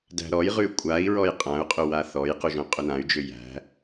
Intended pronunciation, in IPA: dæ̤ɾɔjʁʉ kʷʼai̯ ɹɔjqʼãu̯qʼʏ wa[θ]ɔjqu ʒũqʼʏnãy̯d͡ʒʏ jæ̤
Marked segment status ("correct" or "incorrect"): correct